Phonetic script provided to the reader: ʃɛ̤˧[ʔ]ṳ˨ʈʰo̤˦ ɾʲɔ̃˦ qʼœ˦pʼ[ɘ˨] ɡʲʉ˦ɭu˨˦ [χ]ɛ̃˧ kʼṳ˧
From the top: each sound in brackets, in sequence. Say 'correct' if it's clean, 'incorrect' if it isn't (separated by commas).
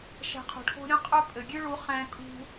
incorrect, correct, correct